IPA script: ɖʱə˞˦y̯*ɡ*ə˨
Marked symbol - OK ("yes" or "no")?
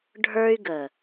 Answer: yes